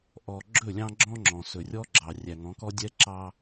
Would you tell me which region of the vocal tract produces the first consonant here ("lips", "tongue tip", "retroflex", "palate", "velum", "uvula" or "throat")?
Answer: throat